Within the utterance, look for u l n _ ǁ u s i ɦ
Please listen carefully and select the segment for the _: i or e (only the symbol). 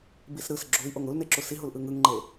e